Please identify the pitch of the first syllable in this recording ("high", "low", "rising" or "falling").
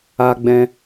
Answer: high